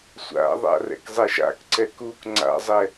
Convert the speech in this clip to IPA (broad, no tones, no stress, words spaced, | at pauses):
sʷa̰ðˤa̰ rɛ̰kzˤɛʃa̰kǀɛk uk ŋ͡ǀa̰zˤɛ